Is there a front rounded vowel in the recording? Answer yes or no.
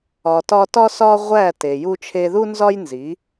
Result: no